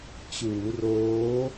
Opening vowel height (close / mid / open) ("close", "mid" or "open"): close